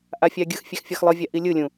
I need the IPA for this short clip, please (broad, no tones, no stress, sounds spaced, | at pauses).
ʔ a fʲ a ɡʲ ɯ x fʲ ɛ x fʲ ʌ x lˠ ɯ vʲ a ʔ i lʲ ɯ lʲ ũ